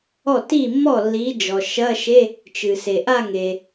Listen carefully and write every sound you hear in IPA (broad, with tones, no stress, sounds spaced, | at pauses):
ɔ˥˩ t i˥˩ mː ɔ˥˩ lː i˨˦ d͡ʒ ɔ˩ ʃ ɐ˧˥˧ ʃ e˧˥˧ | t͡ʃ ɨ˩ s e˩ ʔ a˥˧ ŋ e˩